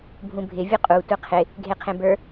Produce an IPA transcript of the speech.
bʱ ũ bʱ ɪ vʲ u qʼ u tʷ ɘ qʰ ɪ | ɡʱ e qʰ ẽ b ə˞

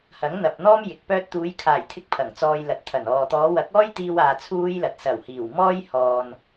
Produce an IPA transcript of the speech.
h ɐ˨˥ ŋ n̪ ɐ˨ p̚ n̪ ɔː˥ m j ɪ˨˥ k̚ p œː˥ t̚ t̪ uː˨˧ j kʰ aː˨˩ j t̪ʰ ɪ˧ k̚ pʰ ɐ˨˩ ŋ t͡s ɔː˧ j l ɐ˨˥ t̚ t̪ʰ ɐ˨˩ n ɔː˨ t̪ ɔː˨˧ w ɐ˨˥ k̚ ɔː˥ j t̪ iː˧ w aː˧ t͡sʰ uː˥ j l ɐ˨ t̚ s ɐ˨˩ w h iː˨˩ w m ɔː˥ j h ɔː˨ n

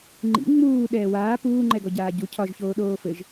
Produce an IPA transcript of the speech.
ŋ͡ǃ ḭ ŋ͡m uː ɗ ɛː w aː p uː ŋ͡ǃ ɛ ɡ ɔ ɟ aː ɟ u cʰ ɒ ʒ ç oː ɗ oː f ɘ ʒ

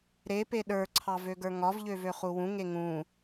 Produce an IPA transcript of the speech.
ɾ e p e ɗ ə˞ ǀʰ ɑ v ø ɡ ə˞ ŋ ɒ v ʎ ø v ø χ u w ũ ŋ e ŋ ũ

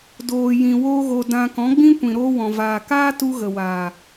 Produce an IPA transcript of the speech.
d oː˨ j ĩ˨ w oː˧ ɣ o˨ d ã˧ k ɔ̃˨˦ ɡ͡b ĩ˦ kʷ ĩ˨ ɾ oː˧ w ɔ̃˨ v aː˨ k aː˦ t u˧ ɣ ə˨ w aː˨

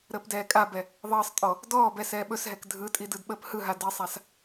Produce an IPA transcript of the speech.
ɾ əː p d ɛː kʼ a b ɛ | ðˤ əː sˤ tʼ ɔ | d ɔː b ɛ s ɛː ɓ ɵ s ɦ ɛ k dʱ ɯ tʼ i d ɯ d ɓ əː p h ɯ ɦ a d i sˤ a s

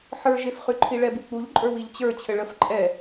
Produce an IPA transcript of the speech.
ħ ə˞ ʒ e f χ y ǃʰ i ɭ ɛ b y k͡p u ʎ ǃʼ ə˞ w i ʎ t͡ɕ ə˞ t͡ɕʰ ɘ ɭ ə f ǃʼ ɛ

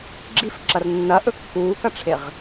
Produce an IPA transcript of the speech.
ɡ͡ǁ i f ǁ ɐ r nː ɐ ʔ ɵ kː uː k ɐ ʈ͡ʂʰ e ʁ

